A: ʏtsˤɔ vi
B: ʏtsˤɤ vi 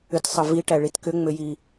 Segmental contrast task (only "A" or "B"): B